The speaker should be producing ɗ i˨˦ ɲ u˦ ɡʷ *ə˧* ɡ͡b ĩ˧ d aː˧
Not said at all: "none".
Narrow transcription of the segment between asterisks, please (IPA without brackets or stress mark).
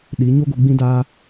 ɨ˧